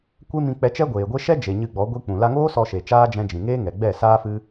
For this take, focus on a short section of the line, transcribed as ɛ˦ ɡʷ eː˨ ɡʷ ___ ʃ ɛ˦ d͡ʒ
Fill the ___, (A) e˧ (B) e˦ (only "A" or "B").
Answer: B